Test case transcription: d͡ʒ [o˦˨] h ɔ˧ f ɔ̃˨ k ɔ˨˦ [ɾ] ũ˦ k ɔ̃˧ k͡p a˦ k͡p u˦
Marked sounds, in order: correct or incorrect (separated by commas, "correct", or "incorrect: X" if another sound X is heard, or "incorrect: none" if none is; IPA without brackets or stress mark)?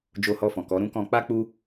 incorrect: o˧, correct